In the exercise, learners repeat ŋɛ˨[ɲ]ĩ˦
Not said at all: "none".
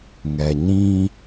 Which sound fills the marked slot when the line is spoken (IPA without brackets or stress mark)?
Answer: ɲ